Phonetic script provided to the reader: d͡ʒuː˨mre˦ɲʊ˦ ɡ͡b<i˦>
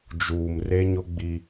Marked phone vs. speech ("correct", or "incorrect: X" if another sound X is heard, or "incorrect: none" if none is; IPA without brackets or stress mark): correct